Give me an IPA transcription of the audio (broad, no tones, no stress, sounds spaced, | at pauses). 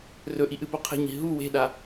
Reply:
r ɵ ʔ i ʔ ɨ p o qʰ e̤ ɲ i̤ ɦ u w e̤ ɗ a